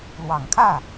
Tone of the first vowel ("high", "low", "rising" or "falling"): low